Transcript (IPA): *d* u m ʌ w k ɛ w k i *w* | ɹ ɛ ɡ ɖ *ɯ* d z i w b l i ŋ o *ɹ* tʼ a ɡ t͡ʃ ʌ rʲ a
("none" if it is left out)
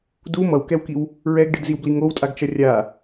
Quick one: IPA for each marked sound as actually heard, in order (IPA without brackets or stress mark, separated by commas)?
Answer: d, w, ɯ, w